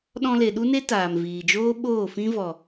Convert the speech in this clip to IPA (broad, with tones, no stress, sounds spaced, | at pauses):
ɗ ɔ̃˧ l e˨ ɗ u˦ n e˦ t aː˨ m v iː˨ d͡ʒ oː˦ ɓ oː˦˨ f ĩ˦ v ɔ˨